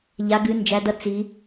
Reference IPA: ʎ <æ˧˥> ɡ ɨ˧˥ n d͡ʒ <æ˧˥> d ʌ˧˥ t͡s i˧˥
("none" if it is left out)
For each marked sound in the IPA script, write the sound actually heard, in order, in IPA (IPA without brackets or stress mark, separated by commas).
a˧˥, æ˧˥